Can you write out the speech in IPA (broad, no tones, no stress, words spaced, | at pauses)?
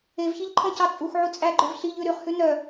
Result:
evçiʎǃʰɔ̃cɑ t͡sʼuxʕu t͡sʼæɡ͡ǃœv ɬiʎʉ ɾyχhʉ nœ